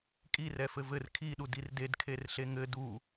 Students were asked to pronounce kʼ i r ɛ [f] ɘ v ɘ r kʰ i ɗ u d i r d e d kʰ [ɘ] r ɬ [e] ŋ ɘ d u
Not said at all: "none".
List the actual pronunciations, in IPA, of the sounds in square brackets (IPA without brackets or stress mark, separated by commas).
f, e, e